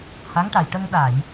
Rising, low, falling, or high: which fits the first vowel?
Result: rising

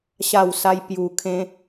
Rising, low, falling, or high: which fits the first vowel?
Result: falling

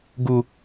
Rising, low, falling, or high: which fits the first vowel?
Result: low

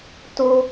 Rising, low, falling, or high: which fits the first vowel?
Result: high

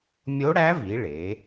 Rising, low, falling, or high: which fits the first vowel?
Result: rising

